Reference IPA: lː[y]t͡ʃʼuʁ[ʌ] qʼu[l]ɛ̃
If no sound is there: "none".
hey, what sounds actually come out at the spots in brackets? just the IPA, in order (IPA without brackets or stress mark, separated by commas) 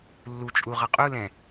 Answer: u, ʌ, l